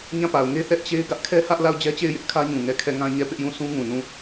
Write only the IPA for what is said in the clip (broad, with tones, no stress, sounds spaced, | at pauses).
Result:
ɲ ã˦˨ p a˨ ʊ̯ ŋ e˦ θ ɛ˦ ʔ t͡ɕ e˦ ɪ̯ ɡ ä˦ ʔ kʰ ɛ˦ h ä˦ ʔ l a˦˨ ʊ̯ d͡ʑ ɛ˦ t͡ɕ e˦˨ ɪ̯ j ɪ˦ ʔ kʰ ä˦ ɲ ũ˨ ŋ ɛ˦˨ kʰ ɛ˦˨ ŋ ã˦ ɲ ɛ˦˨ p ɪ˦ ʔ j ũ˦˨ sʰ ũ˦ ŋ ũ˨ n ũ˦˨